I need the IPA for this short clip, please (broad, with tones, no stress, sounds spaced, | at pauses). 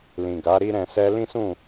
l ĩ˨ ɡ a˨˦ ɾ i˦ ɾ ɛ̃˧ s ɛ˦ l ĩ˦ s ũ˦˨